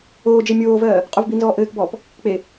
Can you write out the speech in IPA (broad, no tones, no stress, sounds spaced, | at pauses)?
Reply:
oː d͡ʒ e mʲ oː v ɜː | qʼ o v b i n z ɔː ʔ ɘː k b ɔː p | k͡p e